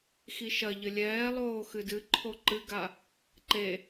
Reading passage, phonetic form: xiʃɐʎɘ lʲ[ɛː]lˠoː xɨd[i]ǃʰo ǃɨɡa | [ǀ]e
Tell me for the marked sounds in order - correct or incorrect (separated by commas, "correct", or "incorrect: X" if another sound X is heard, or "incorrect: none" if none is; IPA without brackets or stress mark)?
correct, incorrect: ɨ, incorrect: ǃ